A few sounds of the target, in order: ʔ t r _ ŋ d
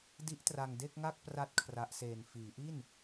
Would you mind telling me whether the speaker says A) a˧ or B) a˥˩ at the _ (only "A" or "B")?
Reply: A